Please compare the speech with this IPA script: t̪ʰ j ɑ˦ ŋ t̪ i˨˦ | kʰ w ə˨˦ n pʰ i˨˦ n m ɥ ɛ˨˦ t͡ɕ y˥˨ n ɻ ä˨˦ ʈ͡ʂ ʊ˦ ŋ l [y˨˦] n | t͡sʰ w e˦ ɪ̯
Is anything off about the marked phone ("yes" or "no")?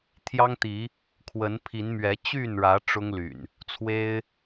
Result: yes